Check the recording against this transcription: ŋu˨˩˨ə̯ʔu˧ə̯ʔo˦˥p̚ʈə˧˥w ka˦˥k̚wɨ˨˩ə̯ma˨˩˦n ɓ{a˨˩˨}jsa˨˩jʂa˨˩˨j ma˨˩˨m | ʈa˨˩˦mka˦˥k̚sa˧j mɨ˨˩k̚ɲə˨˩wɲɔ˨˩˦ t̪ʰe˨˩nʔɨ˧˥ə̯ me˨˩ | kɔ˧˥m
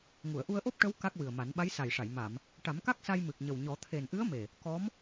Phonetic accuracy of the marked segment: incorrect: a˧˥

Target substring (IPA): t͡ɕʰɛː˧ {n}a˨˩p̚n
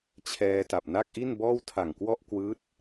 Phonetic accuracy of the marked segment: incorrect: t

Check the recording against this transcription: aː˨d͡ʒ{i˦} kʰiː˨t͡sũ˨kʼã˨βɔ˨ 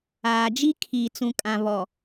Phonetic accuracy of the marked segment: correct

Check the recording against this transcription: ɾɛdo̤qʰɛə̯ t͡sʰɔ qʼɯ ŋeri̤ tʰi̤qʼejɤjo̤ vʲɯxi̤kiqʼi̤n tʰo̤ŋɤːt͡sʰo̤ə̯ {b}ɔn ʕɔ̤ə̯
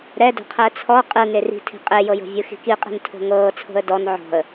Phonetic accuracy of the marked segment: incorrect: d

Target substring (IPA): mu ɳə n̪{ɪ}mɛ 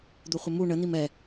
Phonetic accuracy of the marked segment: incorrect: i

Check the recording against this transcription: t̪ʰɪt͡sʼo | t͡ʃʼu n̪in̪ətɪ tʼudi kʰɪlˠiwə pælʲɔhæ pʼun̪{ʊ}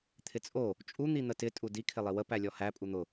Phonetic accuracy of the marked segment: correct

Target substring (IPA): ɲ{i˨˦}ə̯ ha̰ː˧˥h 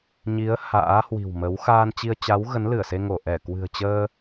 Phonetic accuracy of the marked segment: correct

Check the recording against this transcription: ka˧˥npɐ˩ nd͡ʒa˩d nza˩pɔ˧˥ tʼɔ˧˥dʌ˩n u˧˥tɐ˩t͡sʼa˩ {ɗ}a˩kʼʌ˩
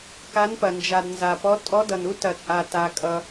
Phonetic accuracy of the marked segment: incorrect: t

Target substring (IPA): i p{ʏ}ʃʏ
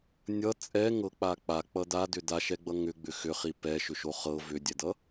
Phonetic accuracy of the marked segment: incorrect: ɛ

